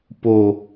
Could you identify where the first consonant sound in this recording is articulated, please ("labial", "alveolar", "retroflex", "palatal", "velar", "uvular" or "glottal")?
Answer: labial